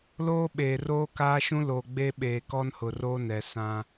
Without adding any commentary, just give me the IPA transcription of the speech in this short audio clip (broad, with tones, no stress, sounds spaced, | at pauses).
l oː˦ ɓ eː˨ r oː˦ k aː˦ ʃ ũ˦ l o˨ ɡ͡b e˦ ɓ eː˨ k ɔ˦ n h ʊ˨ r o˦ n ɛ˨ s ã˦